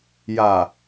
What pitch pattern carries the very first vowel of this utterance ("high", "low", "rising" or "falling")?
low